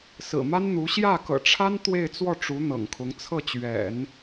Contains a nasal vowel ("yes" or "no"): no